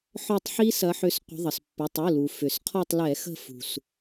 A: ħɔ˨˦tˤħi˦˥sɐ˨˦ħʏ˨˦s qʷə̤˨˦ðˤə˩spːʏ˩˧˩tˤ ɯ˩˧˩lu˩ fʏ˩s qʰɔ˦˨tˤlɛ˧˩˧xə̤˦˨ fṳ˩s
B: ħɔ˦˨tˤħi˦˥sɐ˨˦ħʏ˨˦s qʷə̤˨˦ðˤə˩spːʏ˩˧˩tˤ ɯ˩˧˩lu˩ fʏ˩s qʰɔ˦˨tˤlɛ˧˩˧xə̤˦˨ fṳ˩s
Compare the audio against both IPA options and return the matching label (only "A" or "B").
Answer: B